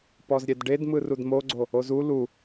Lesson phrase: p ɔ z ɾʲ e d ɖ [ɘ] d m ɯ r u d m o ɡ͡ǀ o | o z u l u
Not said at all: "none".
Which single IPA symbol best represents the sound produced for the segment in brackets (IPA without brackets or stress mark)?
e